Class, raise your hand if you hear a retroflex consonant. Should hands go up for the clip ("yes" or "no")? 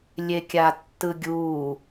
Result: no